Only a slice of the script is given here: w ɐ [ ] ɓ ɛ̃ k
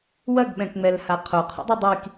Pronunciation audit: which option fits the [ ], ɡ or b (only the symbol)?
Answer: ɡ